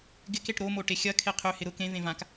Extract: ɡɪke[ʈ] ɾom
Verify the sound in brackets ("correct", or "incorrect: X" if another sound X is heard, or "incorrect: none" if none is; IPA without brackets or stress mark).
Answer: correct